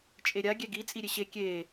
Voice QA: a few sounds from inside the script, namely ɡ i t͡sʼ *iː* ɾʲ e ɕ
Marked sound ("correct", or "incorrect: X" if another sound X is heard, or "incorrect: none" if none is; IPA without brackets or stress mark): incorrect: i